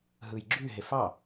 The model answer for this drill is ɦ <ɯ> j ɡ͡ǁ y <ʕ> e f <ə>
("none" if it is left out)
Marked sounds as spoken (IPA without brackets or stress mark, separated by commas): ɯ, ɦ, ɑ